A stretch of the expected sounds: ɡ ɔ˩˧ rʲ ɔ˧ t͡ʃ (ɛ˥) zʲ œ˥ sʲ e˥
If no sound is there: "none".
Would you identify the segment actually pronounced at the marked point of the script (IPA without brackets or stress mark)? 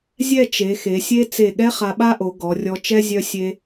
ɛ˥